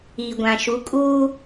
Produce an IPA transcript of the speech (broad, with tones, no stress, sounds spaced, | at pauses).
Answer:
i˨ ɡʷ ã˨ ʃ u˨˦ kʼ uː˦